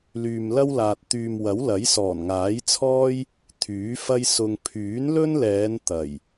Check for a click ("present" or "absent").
absent